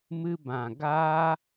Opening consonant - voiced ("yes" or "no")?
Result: yes